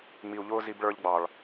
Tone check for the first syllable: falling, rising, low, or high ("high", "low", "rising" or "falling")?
low